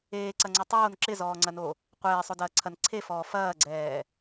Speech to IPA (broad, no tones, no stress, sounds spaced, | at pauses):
eː ǀ ɐ ŋ͡ǀ o tˤ oː n ǁ ɪ z ɔː ŋ͡ǀ ɐ n o | qʷ eː sˤ o d ɐː ǀʰ ɐ n ǀʰ e f ɔː f ɐː ɡ͡ǀ ɛː